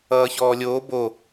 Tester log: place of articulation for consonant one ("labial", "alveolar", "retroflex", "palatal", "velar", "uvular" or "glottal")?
palatal